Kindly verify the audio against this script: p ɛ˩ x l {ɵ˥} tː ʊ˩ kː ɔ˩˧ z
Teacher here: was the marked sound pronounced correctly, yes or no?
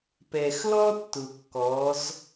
no